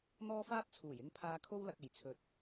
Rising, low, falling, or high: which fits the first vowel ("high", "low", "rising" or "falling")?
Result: high